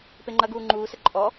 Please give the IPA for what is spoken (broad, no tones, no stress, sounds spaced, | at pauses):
p e ŋ͡ǃ ɐ ɡ uː ŋ͡ǃ uː s ə ǃʼ ɔ